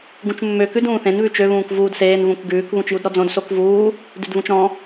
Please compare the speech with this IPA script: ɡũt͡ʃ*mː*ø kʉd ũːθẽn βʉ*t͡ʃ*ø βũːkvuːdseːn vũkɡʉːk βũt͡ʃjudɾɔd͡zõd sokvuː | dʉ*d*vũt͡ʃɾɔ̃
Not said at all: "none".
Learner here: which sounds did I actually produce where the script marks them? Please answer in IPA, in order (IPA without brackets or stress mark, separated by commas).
mː, t͡ʃ, d